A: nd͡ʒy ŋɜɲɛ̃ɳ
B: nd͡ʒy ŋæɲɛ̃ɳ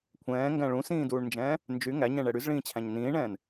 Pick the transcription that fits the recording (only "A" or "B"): B